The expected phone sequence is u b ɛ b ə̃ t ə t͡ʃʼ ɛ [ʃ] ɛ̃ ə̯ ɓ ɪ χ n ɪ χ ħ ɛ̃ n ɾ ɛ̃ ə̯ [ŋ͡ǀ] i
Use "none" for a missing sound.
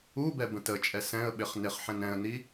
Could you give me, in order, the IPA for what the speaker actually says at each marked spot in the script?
s, n

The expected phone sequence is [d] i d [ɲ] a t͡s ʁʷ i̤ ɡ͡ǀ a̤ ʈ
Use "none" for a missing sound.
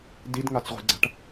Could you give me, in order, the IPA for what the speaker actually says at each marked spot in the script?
d, ŋ

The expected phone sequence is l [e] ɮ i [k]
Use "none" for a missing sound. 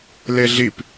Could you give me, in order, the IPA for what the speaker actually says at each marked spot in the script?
e, p

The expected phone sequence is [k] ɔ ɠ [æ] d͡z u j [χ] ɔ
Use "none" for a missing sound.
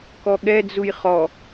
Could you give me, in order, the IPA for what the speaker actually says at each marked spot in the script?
k, ɛ, χ

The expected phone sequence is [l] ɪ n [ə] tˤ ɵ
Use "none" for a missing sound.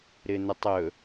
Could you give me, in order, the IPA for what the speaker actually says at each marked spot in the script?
ɾ, ə

